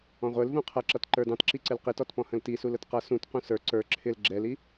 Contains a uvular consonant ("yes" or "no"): yes